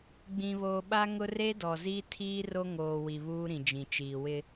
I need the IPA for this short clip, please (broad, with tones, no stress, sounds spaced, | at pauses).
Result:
ɡ͡b ĩ˨ β oː˨ ɓ a˦ ŋ ʊ˦ r e˦ d ɔ˨ z i˦ tʰ iː˦ r o˦ ŋ oː˨ w i˨ β uː˦ ɾ ĩ˨ d͡ʒ ĩ˨ t͡ʃ iː˨ w ɪ˦